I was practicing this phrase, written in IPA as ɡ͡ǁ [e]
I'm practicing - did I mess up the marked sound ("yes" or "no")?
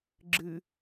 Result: yes